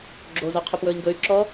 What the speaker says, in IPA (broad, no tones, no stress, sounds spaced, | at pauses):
ɡ͡ǁ o z ɔ qʰ o p w ɵ i̯ ŋ ɡ ɵ y̯ ǁ ɔ